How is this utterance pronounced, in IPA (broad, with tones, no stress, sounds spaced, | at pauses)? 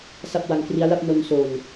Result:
s a˥˩ p̚ w a˧ ŋ k r i˦˥ a̯ l a˥˩ p̚ n o˧ n s o˨˩ n